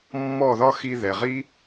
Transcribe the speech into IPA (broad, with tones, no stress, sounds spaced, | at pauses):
mː ɔ˦˨ ð ɒ˦ x i˧ ð ɛ˨ ʁ i˦